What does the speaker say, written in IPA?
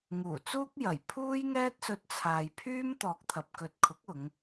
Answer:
ŋ uː˨˩ t͡s uː˥ k̚ j ɐ˨˩ j pʰ uː˥ j ŋ ɛː˥ t̚ s ɵ˧ t̚ t͡sʰ aː˨ j pʰ yː˥ m t̪ ɔː˨ k̚ t̪ʰ ɐ˨ p̚ k ɵ˨ t̚ kʰ ʊ˨˥ k̚ ʊ˨˧ ŋ

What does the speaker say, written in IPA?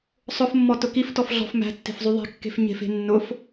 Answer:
sˤ ʊ f mː ɔ t ʊ k i f t ɔ f ɮ ɔ̤ f m æ̤ tː e̤ f zˤ y ðˤ e̤ kː e̤ f ɲ e̤ f e̤ nː ʊ f

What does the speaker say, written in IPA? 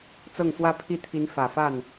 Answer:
t͡s ɤ˥˩ ŋ f w ä˥ pʰ i˥˩ t̪ʰ i˧˥ n f ä˨˩ f a˥˩ n

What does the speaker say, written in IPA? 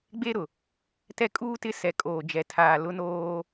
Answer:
ɡ͡b e˦ ɾ ʊ˨ | t ɛ˦ kʼ uː˦ t ɪ˦ s ɛ˨ kʼ oː˨ d͡ʒ ɛ˨ tʰ aː˨ l ʊ˦ n oː˦

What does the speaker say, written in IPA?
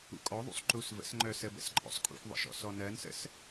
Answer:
ṵ kʼ ɔ ðˤ ṵ sˤ ǃ u s v ə̰ s ŋ͡ǃ œ s ə b ə̰ s ǃʼ ɔ̰ sˤ kʼ ṵ xʷ ðˤ ə̰ ʃ ɔ̰ s ɔ n ɜ n s ə̰ s

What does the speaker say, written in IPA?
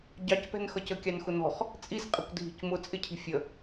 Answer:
ɟ ɑ c p ɛ̤ n x ʌ c ə kʲ ɑ n x ʊ n ɔ̤ χ | t͡sʼ i s qʼ ɪ kʷ dʱ i̤ c m ʊ t͡sʼ ɪ cʰ i̤ fʲ ə

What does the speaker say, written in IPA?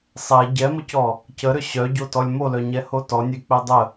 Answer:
sˤ ɛ ɟ ɛ m ə c ɔ | c ə ɾ ʏ ɕ œ ɟ o t ɔ lʲ m o l œ ɲ ɛ h o t ɔ nʲ e k͡p e dˤ ə

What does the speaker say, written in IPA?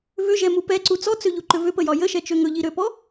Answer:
v ʏ ʒ ɛ m u p ɛ ǀ u t͡s ɔ t͡s ø ʎ u ǃ ʏ v ʏ p ə j ɒ j ə ʃ ɛ t͡ʃ ø ŋ ɵ ʎ i ɾ ø p ɔ

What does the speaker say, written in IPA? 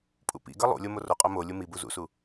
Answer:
pʼ ṵ p ḭ ɡ ʌ lˠ ṵ lʲ o m o r o qʼ o m o lʲ u m i b u z ṵ s u

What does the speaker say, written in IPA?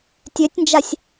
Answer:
tʲ ø tʲ n d͡ʒ a sʲ

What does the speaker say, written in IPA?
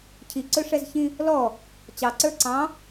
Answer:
cʰ i ǀ ɵ ʂ ɛ z ç ĩ | l ɔ | t͡ɕ ɑ ǀ ə˞ ǀ ɑ̃

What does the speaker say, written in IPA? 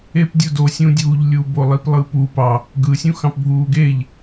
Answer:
e p dʲ u d o sʲ ũ dʲ uː ʎ lʲ u b o lˠ i p lˠ ɯ p u p ɑ | ɡ ɯ sʲ ũ x ɑ̃ p bʱ uː ɡ e ʎ

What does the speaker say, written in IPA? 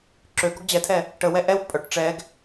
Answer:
ǁ ø ɡ ɔ ɡ d͡ʑ ɛ tʰ ɛ | ʈ ə w ɛ ʔ ɛ w pʼ œ ʈ ʈ͡ʂ ɛ ɡ

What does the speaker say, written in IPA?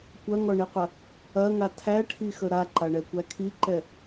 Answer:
kʷ ɐ ŋ ɔ ɳ i qʷ ɐ | ɐ ŋ a tʰ æ ʈʰ i x ə ɾ a ǃ a ɳ ɛ kʷ æ kʰ i ǃ ɛ

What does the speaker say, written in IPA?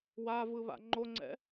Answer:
w a v ɯ β a̰ ŋ͡ǃ o ŋ͡ǀ ɛ̰

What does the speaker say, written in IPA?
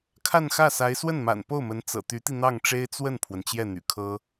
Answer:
kʰ a˥˧ n x ä˥˩ s a˧˥ ɪ̯ s w ə˥˩ n m a̰˨˩ n p o˥˩ ʊ̯ m ə˧˥ n t͡s ɤ̰˨˩ t̪ y˧˥ t̪ i˧ n̪ ɑ˥˩ ŋ ʈ͡ʂ e˥ ɪ̯ t͡s w ə˥˩ n pʰ w ə˩ n t͡ɕ j ɛ˥˩ n̪ y̰˨˩ kʰ ɤ˥

